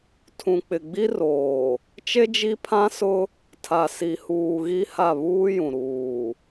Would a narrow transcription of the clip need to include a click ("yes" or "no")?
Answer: no